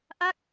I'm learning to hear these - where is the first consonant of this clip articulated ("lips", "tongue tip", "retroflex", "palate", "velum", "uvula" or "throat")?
throat